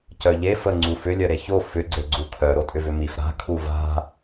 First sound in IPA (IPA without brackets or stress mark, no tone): c